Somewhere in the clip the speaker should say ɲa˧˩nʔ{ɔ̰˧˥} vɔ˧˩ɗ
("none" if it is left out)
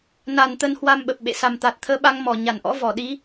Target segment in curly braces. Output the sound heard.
ɔ̰˧˥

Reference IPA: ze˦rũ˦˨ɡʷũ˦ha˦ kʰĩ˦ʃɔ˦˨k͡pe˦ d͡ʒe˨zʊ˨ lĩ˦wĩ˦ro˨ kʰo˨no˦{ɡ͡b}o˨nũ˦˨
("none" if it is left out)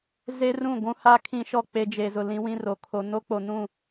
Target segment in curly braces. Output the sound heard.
k͡p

